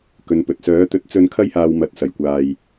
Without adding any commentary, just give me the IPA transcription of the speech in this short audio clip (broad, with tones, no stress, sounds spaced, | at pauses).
k ɵ˨˧ n p ɵ˨ t̚ s œː˨˥ t̪ ɵ˧ t̚ t͡s ɵ˧ n kʰ ɐ˥ j h aː˧ w m ɐ˨˥ t̚ s ɐ˨˩ j kʷ aː˨ j